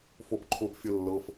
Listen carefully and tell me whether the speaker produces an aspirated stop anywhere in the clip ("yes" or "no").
yes